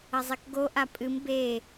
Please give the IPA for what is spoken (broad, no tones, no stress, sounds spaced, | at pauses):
ɐ zˤ e k ɡ o ʔ a pʼ ɨ m b e